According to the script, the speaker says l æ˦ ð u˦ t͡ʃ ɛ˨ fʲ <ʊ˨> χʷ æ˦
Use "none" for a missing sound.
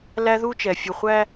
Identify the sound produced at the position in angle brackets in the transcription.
u˨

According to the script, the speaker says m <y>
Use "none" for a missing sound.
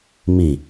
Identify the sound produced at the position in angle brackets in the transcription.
i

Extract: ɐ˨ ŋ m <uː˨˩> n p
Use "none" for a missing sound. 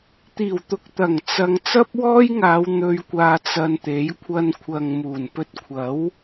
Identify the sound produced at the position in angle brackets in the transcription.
uː˨˩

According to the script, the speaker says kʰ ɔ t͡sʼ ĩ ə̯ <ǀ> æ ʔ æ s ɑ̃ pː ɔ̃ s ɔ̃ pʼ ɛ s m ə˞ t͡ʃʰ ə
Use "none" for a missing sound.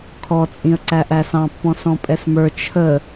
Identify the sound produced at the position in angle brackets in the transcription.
ǀ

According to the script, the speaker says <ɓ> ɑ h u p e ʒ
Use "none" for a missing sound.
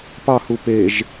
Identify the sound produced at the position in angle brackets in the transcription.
p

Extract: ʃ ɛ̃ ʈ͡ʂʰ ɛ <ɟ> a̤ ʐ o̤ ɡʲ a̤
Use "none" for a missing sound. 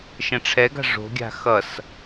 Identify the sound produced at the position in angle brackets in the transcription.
ɡ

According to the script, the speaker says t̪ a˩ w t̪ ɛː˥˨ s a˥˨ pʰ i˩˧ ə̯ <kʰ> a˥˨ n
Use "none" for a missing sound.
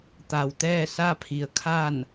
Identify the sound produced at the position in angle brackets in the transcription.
kʰ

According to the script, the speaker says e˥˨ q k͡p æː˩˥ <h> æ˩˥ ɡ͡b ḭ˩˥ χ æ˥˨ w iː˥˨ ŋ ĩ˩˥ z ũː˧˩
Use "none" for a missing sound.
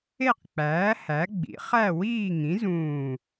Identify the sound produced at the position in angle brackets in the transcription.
h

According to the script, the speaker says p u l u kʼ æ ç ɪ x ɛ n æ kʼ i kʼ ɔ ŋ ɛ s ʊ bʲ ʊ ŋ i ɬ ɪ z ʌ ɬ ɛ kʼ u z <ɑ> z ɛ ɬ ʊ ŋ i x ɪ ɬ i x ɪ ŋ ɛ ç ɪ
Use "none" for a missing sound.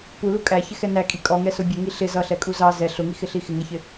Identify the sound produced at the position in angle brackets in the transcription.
ɑ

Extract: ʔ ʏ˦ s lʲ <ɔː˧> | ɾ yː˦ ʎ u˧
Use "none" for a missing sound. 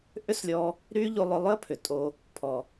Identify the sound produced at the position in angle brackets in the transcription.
ɔː˧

